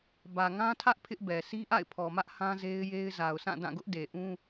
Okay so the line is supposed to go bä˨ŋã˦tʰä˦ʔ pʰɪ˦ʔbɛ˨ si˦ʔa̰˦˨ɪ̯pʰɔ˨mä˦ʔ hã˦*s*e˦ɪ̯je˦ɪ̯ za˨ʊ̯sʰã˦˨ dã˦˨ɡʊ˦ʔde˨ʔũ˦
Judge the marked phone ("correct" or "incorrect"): incorrect